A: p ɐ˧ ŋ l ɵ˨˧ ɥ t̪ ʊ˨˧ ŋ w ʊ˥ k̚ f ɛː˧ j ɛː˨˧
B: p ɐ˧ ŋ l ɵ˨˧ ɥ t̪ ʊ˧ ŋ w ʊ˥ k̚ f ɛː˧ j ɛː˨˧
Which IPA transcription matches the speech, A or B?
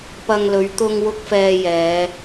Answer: B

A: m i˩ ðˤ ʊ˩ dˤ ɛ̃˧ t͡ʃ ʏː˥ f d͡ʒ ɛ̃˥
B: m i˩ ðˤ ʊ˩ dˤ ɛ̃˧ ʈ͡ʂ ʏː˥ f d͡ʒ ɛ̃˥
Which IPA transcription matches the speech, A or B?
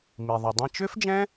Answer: A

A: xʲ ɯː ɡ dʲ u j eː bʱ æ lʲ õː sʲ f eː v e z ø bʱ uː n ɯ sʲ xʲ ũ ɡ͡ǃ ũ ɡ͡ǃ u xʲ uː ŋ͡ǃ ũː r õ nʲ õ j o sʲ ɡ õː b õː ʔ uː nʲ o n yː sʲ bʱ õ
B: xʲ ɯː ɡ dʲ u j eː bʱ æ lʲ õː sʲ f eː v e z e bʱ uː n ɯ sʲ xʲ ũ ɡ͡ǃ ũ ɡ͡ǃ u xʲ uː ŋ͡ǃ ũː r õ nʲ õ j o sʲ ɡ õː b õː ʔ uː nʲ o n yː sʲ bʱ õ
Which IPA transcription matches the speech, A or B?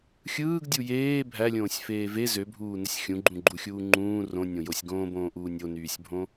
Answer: A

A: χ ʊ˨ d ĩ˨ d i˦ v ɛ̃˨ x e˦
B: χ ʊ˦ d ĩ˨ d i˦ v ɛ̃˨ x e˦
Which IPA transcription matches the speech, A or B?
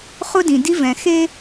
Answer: B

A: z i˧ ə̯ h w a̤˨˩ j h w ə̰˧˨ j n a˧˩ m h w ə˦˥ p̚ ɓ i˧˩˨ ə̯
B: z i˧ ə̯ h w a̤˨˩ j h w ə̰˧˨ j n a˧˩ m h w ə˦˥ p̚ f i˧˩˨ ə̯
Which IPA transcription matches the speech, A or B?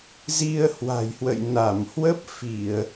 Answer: B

